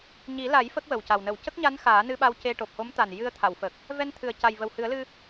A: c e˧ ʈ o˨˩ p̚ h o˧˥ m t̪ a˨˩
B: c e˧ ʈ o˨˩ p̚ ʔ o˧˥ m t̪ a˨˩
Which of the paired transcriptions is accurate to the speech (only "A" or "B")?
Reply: A